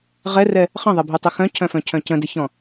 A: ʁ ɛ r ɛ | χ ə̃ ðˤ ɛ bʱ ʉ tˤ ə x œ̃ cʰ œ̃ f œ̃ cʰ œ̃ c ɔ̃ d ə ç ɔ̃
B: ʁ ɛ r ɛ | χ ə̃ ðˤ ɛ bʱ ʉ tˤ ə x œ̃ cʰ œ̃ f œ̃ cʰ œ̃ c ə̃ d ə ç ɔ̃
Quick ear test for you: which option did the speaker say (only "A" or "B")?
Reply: B